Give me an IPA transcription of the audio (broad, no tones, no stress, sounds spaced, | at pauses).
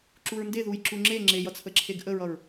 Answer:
ǁ u ɹ n d e ð u j ǁ u ŋ͡ǁ e ŋ͡ǁ e j ʌ t͡sʰ ə ǁʰ e ɡ ʔ ə ɹ ʌ ɹ